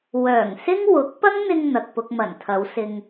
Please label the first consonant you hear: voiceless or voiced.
voiced